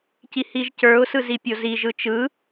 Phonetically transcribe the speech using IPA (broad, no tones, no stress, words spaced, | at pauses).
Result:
cihiʒcə˞ʊ̯ sɯzipʲozi ʒɯt͡ʃɯ